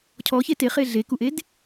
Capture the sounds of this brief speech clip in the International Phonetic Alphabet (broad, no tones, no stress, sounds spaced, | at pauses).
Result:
cʰ ɔ ç e t e χ e ɮ e k u ʔ e d